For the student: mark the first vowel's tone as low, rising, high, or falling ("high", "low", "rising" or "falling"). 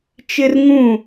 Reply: high